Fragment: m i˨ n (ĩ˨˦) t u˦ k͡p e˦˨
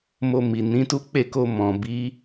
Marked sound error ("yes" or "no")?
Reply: no